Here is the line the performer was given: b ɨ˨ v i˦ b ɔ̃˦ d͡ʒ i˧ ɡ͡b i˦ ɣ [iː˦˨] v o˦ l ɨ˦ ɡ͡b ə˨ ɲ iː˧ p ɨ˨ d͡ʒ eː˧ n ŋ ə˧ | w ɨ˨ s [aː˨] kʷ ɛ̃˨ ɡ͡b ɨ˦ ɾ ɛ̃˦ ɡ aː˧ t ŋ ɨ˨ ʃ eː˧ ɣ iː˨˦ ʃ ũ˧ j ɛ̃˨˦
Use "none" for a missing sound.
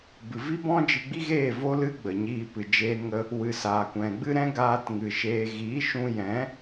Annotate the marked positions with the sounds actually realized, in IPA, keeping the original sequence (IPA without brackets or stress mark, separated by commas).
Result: eː˦˨, aː˨